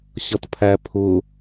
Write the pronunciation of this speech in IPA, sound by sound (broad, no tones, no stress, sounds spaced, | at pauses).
ɕ ʌ t pʰ æ pʰ ʊ